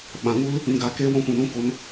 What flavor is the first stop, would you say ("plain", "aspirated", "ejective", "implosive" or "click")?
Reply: implosive